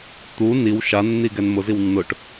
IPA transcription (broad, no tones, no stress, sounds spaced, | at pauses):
t̪ u n i w ʃ a nː i ɡ ɛ n m ʊ z i w nː ʊ ʈ